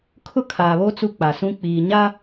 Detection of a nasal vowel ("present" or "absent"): present